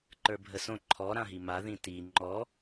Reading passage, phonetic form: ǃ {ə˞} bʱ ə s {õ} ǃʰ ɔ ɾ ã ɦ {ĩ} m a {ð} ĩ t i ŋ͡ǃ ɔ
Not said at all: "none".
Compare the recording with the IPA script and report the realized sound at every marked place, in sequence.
ə˞, õ, i, ð

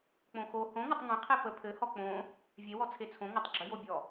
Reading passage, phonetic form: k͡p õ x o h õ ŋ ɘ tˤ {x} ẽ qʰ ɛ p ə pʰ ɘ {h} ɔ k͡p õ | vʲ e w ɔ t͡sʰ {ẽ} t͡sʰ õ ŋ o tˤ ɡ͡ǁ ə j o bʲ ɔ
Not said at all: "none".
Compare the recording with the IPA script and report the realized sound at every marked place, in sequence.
ŋ, h, e

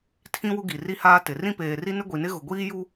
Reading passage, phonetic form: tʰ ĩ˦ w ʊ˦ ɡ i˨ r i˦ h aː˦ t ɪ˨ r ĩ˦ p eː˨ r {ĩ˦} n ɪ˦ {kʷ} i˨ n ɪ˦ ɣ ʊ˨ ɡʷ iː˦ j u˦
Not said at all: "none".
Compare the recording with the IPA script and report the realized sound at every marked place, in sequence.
i˦, ɡʷ

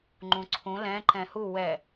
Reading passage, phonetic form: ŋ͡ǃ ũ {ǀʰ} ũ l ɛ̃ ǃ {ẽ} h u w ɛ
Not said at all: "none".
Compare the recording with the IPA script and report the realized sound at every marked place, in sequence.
ǀʰ, ɛ̃

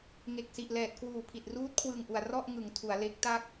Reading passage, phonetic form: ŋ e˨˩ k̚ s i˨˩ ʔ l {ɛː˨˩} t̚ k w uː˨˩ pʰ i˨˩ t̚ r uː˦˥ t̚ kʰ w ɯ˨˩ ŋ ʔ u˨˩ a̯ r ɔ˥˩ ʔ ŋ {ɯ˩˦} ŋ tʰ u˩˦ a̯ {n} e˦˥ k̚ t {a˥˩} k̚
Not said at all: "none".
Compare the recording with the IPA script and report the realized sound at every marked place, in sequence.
ɛː˨˩, ɯ˩˦, l, a˥˩

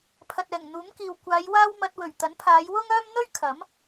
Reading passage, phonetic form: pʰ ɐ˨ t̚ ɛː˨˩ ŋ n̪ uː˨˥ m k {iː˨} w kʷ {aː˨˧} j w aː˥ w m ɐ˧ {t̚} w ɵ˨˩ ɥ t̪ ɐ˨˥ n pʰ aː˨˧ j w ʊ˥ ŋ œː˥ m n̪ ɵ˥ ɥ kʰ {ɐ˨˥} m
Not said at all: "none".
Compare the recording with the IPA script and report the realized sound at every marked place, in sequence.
iː˨, aː˨˧, t̚, ɐ˨˥

